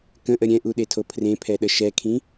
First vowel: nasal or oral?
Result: nasal